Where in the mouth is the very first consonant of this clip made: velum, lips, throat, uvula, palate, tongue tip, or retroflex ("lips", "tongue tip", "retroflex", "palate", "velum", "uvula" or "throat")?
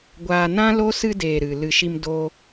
velum